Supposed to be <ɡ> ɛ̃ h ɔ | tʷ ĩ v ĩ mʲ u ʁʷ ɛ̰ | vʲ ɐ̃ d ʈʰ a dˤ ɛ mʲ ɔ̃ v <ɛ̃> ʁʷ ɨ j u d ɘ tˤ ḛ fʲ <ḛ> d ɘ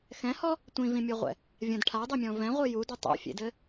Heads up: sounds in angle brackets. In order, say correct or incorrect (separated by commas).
incorrect, correct, correct